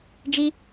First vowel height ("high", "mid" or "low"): high